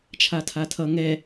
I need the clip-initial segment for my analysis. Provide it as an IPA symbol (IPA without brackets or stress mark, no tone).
t͡ʃʰ